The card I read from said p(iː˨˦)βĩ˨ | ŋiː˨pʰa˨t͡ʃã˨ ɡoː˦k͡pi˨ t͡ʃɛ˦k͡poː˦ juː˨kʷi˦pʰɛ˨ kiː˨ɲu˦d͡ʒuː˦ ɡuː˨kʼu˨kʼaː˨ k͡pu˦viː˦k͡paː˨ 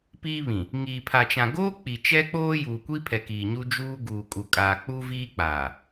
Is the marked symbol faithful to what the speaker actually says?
no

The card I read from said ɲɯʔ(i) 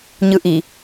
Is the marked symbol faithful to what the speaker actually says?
yes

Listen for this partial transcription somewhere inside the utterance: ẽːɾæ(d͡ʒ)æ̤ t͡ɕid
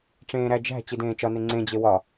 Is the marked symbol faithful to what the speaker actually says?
yes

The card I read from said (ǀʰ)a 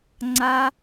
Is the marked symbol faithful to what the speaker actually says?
no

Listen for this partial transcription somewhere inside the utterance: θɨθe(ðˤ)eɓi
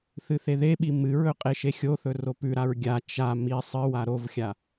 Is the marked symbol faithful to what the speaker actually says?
no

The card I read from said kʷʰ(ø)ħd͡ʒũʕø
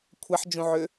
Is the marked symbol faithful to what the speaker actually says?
no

